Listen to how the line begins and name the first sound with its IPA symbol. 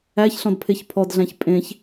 æ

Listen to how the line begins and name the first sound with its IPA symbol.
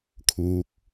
kʰ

